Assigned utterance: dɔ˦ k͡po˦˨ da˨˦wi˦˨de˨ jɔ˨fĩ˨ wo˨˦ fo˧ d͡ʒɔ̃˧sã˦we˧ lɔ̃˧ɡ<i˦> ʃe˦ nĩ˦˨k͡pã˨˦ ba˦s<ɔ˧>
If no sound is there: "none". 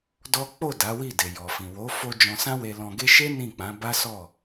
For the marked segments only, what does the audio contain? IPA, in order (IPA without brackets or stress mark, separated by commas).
e˦, ɔ˦˨